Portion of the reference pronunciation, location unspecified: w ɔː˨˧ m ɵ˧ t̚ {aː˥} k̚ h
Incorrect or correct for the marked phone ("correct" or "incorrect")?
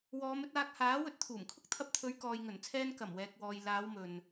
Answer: incorrect